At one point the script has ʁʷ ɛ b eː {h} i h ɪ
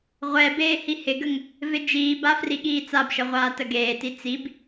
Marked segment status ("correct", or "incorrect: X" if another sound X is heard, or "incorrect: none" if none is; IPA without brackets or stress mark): correct